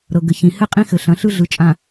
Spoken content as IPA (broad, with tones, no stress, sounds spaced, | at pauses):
ɾ ɤ˨ ɡ ɘ˨ ç ĩ˨ h ɘ˦ qʼ ĩ˦ x ɘ˨ ɬ ɐ̃˨˦ ɬ ɯ˦ ɮ ɯ˨ t͡ʃʼ ã˨